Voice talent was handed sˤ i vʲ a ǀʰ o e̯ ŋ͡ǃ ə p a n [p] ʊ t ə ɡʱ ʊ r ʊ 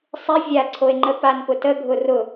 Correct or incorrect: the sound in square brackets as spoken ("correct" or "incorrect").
correct